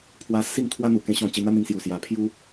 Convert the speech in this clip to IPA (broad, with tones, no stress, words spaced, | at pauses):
pʰwa˦ si˥˧ŋt̪ʰwa˦n̪u˨˩ kẽ˧ɕɔ̃˧ t͡ɕi˧n̪a˦n̪ĩ˧ŋsju˨˩ sja˨˩pʰju˦